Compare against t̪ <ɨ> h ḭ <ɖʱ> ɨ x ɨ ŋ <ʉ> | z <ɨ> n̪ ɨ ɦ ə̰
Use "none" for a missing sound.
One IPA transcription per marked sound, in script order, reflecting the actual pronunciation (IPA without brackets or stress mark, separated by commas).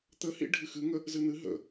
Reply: ə, ɖʱ, ə, ɨ